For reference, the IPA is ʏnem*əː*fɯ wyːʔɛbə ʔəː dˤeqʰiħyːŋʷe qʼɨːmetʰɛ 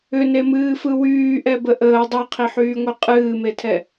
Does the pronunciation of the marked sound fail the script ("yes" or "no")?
yes